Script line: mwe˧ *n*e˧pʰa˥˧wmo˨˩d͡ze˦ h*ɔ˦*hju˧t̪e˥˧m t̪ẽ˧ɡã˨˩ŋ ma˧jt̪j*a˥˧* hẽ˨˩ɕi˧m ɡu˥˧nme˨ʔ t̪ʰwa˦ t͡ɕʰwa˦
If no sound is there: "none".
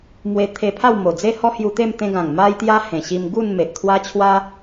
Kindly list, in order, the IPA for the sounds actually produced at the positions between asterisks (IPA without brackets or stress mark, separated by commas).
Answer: t̪ʰ, ɔ˦, a˧